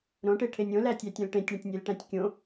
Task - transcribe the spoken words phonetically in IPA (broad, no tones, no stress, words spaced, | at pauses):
ɾõʈeʈʰenʲ õlætʲætʲõl ʈẽtʲɳə̃tʲnʲelʈæ̃tʲ kʲõ